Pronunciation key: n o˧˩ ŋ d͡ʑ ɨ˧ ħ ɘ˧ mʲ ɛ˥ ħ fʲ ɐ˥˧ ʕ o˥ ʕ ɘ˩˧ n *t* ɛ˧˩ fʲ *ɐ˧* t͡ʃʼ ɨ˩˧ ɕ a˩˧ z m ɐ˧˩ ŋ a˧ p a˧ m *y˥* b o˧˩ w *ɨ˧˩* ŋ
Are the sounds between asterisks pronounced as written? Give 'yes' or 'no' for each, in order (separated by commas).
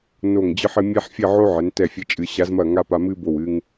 yes, yes, no, no